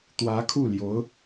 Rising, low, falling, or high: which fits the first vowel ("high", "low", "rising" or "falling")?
rising